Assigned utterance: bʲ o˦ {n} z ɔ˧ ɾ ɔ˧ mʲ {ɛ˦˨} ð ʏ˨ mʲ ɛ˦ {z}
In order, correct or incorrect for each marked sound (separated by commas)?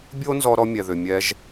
correct, incorrect, incorrect